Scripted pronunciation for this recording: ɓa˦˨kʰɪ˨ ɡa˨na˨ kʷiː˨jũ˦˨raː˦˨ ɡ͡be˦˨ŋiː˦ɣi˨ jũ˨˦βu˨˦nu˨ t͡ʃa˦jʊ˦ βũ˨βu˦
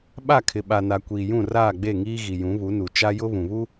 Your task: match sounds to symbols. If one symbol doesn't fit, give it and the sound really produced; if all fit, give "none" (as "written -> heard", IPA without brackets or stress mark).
ɡ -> ɓ